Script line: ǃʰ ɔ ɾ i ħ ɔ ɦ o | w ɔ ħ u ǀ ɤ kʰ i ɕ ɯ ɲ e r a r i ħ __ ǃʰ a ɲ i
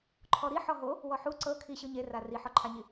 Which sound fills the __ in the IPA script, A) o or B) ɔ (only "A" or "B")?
B